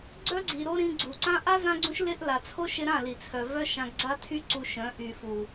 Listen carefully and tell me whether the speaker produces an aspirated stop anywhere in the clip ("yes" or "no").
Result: yes